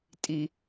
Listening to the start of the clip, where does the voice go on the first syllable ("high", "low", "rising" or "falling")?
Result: high